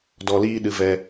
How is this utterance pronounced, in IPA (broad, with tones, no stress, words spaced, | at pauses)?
dɔ˧liː˦ɗɨ˧ vɛ˧